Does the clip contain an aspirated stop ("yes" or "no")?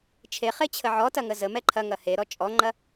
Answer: yes